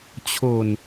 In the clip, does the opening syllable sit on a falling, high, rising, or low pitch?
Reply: low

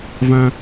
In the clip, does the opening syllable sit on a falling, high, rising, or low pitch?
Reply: high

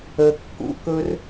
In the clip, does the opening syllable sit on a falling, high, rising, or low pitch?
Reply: low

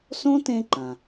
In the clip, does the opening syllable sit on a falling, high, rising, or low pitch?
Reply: high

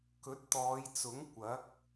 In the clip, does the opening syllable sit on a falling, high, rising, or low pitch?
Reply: rising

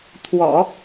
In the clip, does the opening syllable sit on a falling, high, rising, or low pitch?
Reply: low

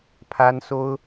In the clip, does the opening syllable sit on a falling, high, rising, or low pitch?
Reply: high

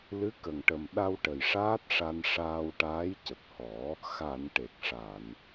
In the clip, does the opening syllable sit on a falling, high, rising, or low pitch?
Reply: rising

